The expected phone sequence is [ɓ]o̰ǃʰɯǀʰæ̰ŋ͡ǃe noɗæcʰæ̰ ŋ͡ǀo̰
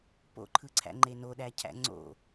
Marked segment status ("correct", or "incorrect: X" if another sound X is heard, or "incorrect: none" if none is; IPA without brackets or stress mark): incorrect: p